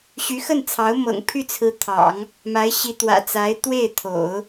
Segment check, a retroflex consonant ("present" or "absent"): absent